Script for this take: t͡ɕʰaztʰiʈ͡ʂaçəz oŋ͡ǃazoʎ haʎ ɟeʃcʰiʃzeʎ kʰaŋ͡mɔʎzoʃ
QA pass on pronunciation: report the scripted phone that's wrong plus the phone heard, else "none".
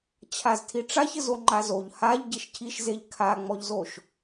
none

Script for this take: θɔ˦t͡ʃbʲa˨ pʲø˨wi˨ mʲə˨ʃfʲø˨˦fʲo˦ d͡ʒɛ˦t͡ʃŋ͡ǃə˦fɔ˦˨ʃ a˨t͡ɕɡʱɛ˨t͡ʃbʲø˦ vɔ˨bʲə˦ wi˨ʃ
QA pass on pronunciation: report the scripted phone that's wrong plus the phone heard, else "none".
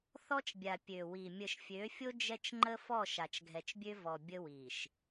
t͡ɕ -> t͡ʃ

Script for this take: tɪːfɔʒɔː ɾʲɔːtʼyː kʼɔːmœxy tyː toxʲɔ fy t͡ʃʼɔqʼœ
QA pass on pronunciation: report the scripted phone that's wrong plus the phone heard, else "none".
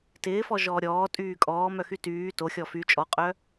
none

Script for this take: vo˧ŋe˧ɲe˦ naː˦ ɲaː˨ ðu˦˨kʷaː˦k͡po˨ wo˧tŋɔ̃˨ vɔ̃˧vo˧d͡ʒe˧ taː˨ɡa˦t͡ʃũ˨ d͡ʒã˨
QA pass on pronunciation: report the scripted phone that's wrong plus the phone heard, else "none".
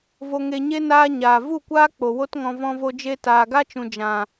ð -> v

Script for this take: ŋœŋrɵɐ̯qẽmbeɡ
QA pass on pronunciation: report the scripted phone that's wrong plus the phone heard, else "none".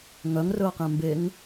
ɡ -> ŋ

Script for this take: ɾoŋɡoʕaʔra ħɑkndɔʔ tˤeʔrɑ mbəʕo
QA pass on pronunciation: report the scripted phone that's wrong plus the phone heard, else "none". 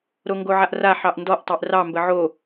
k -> ʔ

